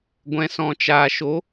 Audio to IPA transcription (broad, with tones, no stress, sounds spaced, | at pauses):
ɡʷ ɛ̃˨ s ɔ̃˨ t͡ʃ aː˨ ʃ o˨˦